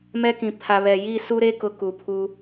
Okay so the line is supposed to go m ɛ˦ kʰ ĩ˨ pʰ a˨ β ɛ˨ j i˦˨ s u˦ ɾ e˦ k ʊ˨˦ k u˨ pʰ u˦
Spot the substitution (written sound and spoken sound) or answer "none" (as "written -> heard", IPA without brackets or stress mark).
kʰ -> k